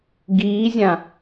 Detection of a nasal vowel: present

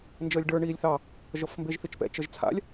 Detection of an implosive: absent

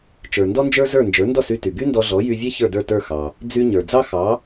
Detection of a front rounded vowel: present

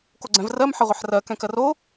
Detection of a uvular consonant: present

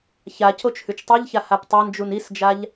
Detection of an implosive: absent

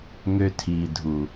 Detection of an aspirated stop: present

